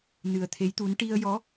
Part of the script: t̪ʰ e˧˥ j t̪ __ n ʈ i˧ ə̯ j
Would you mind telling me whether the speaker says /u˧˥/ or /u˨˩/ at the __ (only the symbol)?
u˧˥